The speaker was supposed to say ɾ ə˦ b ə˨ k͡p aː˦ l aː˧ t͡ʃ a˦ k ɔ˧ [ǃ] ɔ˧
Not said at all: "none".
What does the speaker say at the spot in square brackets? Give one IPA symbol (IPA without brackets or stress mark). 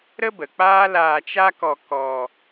k